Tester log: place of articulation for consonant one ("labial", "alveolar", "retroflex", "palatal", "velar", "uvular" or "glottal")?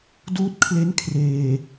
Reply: alveolar